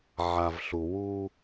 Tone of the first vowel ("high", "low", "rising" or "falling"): low